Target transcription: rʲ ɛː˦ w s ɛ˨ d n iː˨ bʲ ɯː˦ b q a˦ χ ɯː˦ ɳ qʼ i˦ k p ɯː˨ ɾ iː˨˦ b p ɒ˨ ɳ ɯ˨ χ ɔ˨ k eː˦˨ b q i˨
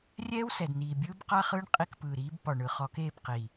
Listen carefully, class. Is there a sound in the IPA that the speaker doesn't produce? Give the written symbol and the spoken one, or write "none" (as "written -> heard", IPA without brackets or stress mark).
none